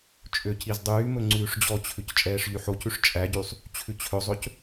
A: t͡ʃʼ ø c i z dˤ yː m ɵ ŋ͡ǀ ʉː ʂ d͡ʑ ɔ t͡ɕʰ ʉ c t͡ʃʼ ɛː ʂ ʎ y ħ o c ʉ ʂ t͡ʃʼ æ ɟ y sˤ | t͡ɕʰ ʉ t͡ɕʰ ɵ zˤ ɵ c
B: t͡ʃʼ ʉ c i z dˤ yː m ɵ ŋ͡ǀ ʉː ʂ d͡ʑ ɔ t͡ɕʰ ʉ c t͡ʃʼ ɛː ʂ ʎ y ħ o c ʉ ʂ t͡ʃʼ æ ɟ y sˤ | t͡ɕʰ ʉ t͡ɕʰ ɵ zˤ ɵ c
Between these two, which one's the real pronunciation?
A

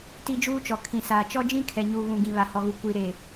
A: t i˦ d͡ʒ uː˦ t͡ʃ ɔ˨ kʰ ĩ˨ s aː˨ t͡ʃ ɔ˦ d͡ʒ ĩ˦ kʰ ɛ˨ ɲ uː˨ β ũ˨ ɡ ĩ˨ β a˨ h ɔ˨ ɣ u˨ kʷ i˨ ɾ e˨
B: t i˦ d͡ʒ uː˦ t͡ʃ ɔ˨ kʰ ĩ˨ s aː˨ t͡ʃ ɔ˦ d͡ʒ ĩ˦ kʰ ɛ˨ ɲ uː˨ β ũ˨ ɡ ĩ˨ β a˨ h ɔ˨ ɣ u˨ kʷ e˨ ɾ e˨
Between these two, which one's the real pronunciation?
A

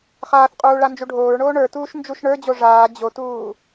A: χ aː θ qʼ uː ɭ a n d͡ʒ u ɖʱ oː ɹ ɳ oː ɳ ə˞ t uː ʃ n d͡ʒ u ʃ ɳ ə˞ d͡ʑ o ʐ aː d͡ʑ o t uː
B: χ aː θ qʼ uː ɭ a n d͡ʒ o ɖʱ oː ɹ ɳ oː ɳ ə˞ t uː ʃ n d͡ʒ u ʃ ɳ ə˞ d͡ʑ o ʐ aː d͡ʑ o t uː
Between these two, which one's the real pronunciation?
A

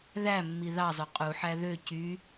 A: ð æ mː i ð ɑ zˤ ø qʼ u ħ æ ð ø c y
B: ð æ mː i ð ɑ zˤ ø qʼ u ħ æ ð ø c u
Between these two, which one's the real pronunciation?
A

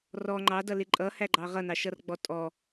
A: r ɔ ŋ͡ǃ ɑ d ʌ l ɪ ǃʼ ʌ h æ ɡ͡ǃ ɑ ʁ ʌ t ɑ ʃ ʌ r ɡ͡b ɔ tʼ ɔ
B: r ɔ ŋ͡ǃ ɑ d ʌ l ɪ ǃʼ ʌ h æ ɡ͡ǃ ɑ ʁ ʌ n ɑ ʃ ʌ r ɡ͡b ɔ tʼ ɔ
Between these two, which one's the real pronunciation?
B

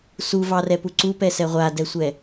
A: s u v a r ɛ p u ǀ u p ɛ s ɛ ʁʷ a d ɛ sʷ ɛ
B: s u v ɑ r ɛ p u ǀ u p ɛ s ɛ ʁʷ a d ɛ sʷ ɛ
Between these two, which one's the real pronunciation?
B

